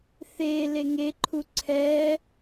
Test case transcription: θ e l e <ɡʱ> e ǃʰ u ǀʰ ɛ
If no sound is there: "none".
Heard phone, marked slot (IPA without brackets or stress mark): ŋ